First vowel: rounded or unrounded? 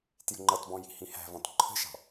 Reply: unrounded